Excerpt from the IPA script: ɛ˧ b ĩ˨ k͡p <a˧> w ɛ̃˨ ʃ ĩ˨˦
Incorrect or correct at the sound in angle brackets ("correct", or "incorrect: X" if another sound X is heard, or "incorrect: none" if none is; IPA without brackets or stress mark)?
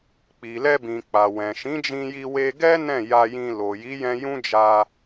incorrect: a˨